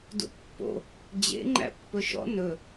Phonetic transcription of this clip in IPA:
d ṵ pː o̰ | d͡ʑ ḛ ŋ͡ǃ æ̰ pː ɵ ʃ ɔ̰ n ɵ

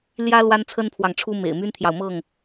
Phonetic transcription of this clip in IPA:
l j ä˦ l w a˦ n t͡sʰ ə˦ n pʰ w ɑ˨ ŋ ʈ͡ʂʰ u˦ m ḛ˨˩ ɪ̯ m y˦ n t̪ʰ j ɑ˨ ʊ̯ m ɤ˥˨ ŋ

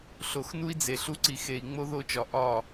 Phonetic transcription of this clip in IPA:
ɬ o˨ x n u˦ i̯ d͡z e˨ ɬ u˦ ǀ i˨ x e˨ i̯ ŋ͡m o˦ ð o˦˨ t͡ʃ ɒ˨ ʔ ɒ˦˨

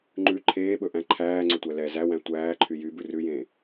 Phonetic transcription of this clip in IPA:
ŋ͡ǃ ʉ ǃʰ eː ɓ ɵ ʔ æ̃ ǃʰ æː ŋ͡ǀ ɵ tʷ æ l ɛ z æ w æ̃ tʷ æː ǃʰ y j y b ʉ r ʉ j ẽː

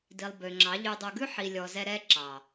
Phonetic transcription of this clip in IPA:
d i˨ lˠ b ø˨ ŋ͡ǁ ɑ˨˦ ʎ y˨ dˤ u˨ ɡ ʉ˦ ħ i˨ lʲ ɔ˨ z ɛ˧ ɾ ɛ˧ ǁ ɑ˨

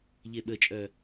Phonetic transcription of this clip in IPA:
ʎ e ɓ ə t͡ʃʼ œ

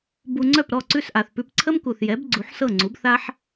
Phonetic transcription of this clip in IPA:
b u˧ ŋ͡ǀ œ˥˩ p ɾ ɔ˥˩ ǀ ʉ˥˩ s ʔ a˩ θ p ʉ˧ p ǀʰ ə˥ m k u˩ θ j ɛ˩˥ b ɡ͡ǀ u˩˥ ħ s ɤ˥˩ ŋ͡ǀ u˩˥ b θ a˥ ħ

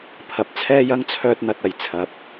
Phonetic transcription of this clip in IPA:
pʰ ɐ˨ p̚ t͡sʰ ɛː˥ j ɐ˥ ŋ t͡sʰ œː˥ t̚ n̪ ɐ˧ t̚ ɐ˨ j t͡sʰ ɐ˨˥ p̚

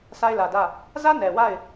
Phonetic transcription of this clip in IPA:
sʰ a˦ ɪ̯ l ä˨ d ä˦˨ | z ä˦ n ɛ˨ w a˦˨ ɪ̯

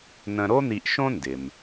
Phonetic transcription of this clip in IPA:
n ə̃˧ ɾ o˥ n̪ i˧ ʔ ʃ õ˥ n d ɪ˩ m

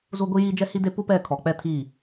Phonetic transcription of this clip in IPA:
z u˦ ɡʷ i˦ j i˦ d͡ʒ ɛ˦ h i˦ d e˦ p u˦ p ɛ˦˨ kʰ ɔ˨ k͡p ɛ˦ tʰ i˦˨

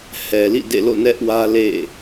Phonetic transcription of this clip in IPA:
h ɛ˨ l ḭ˦˨ d ḛ˦˨ l o̰˦˨ n ɛ˦ ʔ w ä˦ l ḛ˦˨

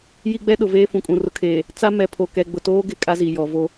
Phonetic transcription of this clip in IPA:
j i˦ ɡ͡b ɛ˦ ɗ ʊ˨ v eː˦ f ũ˨ kʼ ũ˨ r ʊ˦ kʰ eː˨ | t͡s a˦ m ɛ˨ pʰ o˨ k ɛ˨ ɡ͡b ʊ˨ t oː˦ ɡ ɪ˨ kʼ a˦ z i˨ j ɔ˨ v o˦

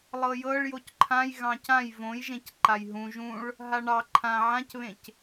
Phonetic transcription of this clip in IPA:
lˠ ɤ j ɤ ɭ j o c ǃʰ ã j ɣ ɑ̃ c ã j v õ j ʒ ẽ c ǃ a j ɦ ũ ʒ ũ ɭ | ɦ a ɳ ɑ ǃʰ ã ʕ ã c β ẽ c

